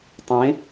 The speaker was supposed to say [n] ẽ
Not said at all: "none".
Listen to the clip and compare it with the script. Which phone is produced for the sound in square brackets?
tˤ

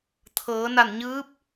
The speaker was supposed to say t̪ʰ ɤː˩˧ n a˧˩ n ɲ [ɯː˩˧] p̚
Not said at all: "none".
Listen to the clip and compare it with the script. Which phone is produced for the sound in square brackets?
ɯː˧˥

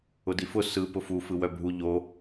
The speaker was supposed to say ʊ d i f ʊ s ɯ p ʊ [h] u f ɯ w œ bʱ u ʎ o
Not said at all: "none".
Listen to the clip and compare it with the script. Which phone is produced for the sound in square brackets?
f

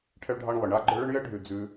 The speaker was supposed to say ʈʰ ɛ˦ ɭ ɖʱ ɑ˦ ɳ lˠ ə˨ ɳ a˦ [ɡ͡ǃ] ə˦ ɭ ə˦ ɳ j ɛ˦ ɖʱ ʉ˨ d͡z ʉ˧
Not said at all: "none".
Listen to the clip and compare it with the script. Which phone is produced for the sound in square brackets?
ɡ͡ǃ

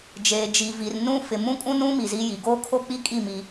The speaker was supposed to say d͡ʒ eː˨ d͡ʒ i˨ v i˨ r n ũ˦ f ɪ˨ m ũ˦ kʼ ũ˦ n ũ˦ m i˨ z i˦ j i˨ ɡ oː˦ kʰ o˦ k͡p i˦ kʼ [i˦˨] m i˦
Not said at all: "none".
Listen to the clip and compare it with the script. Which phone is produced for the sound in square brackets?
i˦˨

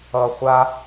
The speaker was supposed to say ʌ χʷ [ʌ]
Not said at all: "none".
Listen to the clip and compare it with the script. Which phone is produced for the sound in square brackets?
a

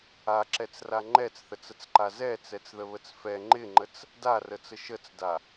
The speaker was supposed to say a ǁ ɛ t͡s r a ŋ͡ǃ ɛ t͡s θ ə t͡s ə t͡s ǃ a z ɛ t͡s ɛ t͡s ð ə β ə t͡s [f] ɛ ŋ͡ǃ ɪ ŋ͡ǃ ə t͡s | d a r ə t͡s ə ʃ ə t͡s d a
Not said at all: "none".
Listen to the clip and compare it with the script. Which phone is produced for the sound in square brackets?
f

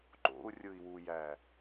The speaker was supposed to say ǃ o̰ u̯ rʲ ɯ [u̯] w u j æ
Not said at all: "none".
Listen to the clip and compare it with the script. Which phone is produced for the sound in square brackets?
i̯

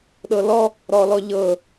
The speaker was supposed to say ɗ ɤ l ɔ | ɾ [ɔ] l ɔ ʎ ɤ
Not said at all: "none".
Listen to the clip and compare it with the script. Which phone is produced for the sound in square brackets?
ɔ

